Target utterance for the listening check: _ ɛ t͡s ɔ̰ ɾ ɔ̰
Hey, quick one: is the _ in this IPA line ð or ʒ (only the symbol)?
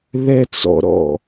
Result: ð